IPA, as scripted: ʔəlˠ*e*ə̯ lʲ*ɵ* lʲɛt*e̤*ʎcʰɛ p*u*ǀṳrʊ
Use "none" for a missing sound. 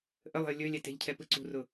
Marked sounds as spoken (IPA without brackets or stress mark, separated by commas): e̤, ɵ, e̤, ɯ